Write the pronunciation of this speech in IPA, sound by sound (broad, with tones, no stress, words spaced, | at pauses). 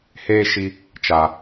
heː˦ʃi˦ | t͡ʃa˧